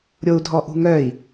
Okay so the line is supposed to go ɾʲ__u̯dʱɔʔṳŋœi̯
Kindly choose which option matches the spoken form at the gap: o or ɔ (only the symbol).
o